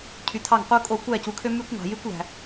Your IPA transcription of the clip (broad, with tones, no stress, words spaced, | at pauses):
cʰy˨tʰɑ˦˨ŋqu˦ kʼo˧kʷæ˦˨ cu˨kʰø˦my˦kʷ ŋɑ̤˨jy˦kʷlæ̤˨